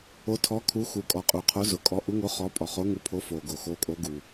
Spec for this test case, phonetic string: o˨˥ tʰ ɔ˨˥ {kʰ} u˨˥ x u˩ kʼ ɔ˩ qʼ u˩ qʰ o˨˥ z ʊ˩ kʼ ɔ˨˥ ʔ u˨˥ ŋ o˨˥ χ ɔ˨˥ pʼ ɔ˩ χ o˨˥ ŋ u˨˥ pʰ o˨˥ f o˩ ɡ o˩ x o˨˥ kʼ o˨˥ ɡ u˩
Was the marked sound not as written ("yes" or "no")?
no